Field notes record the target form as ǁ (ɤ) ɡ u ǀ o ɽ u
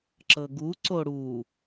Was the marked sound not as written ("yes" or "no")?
no